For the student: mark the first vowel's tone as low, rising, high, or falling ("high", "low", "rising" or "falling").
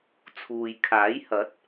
low